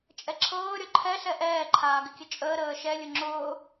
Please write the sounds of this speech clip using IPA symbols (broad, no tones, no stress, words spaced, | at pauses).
t͡ʃʼɛǁʰɤː ɾʲɔǃʰɛ ɬɛʔɛː ǃʰaːɡɪkʲət͡ʃʼəː ɾəːʃɛ lʲʊŋ͡ǁʊː